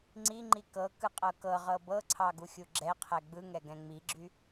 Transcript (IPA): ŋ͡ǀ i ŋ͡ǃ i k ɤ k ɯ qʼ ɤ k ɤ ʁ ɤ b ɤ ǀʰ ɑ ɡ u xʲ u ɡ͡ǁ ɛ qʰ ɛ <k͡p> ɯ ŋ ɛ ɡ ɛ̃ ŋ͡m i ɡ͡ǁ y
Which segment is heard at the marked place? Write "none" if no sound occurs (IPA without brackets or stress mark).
ɡ͡b